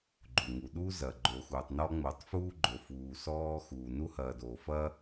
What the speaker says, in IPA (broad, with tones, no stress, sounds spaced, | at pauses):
ɡ͡ǃ u˩ ŋ u˩ ɗ uː˥ z ɐ˩ ɡ͡ǃ o˨ x uː˩ tˤ n ɔ˥ ŋ͡m oː˨ tˤ f uː˥ ɡ͡ǃ o˨ f uː˨ s ɔː˦ x uː˩ n u˥ h ɐː˨ d oː˩ f ɐː˥